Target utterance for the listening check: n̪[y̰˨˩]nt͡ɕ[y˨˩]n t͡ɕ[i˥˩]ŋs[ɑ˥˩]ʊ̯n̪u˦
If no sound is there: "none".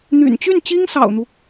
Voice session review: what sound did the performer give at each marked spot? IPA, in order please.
y̰˨˩, y˥˩, i˥, ɑ̰˨˩

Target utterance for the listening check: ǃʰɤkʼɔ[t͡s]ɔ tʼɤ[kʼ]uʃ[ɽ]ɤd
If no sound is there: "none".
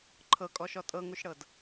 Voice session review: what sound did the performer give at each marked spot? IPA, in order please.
ʃ, ŋ, ɽ

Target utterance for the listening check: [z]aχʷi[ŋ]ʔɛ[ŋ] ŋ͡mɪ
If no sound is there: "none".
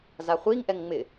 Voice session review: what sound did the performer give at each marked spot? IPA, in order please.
z, ŋ, ŋ

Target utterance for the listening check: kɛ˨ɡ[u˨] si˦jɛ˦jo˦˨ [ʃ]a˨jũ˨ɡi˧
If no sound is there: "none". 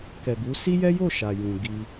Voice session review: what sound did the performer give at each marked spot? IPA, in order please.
u˨˦, ʃ

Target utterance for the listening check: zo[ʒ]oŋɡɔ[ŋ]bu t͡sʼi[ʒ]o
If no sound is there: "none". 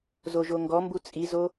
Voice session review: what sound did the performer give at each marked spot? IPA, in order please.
ʒ, m, z

